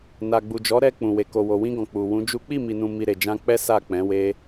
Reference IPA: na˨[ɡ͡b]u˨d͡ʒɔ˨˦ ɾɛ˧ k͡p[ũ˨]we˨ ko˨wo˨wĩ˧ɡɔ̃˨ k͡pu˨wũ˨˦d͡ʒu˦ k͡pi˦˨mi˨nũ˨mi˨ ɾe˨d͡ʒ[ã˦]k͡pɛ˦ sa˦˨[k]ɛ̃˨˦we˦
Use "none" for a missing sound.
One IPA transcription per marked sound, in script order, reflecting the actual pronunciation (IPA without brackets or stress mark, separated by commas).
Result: ɡ͡b, ũ˨, ã˧, k͡p